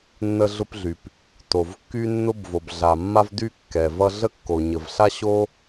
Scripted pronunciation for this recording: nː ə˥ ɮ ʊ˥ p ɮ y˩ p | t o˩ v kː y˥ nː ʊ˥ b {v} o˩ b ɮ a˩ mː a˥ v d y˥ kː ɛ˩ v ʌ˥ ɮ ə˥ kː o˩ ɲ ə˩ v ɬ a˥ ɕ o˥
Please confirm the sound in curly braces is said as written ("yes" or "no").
yes